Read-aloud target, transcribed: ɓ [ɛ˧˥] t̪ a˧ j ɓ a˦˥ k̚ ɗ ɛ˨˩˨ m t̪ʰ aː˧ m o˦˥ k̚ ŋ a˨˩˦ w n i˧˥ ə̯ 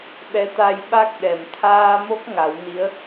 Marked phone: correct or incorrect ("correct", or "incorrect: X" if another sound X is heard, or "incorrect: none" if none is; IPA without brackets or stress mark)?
correct